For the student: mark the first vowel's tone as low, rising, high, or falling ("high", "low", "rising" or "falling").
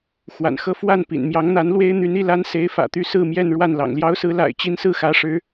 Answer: low